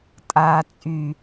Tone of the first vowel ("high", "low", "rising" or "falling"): low